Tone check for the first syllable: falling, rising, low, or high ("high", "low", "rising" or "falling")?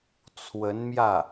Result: rising